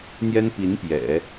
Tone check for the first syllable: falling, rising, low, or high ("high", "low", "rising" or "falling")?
high